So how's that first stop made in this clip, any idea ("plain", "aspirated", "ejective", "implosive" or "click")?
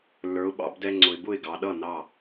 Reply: implosive